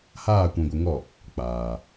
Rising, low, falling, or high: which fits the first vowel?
falling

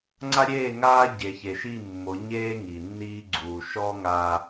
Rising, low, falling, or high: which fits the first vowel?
high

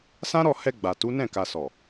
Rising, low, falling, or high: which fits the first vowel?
high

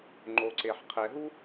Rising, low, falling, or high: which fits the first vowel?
low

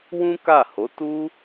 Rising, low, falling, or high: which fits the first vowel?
high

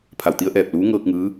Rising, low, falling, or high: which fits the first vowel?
low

